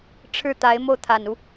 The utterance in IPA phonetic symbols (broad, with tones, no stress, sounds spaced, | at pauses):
ʈ͡ʂʰ ɻ̩˥˩ t̪ a˧˥ ɪ̯ m o˥˩ ʊ̯ t̪ʰ a˨˩ n u˦